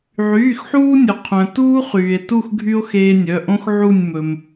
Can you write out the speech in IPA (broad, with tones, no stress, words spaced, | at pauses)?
ʕyː˩˧˩xħuː˦nʲɵ˩ qʰœ̃˩ tuː˦χyː˩e̯tu˦˨x ɡʱy˦o̯ xeː˦nʲœ˩˧˩ ʔõ˦x ʕu˦˨nʲmɵ˩m